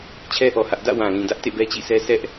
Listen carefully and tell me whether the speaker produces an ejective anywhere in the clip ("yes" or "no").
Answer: no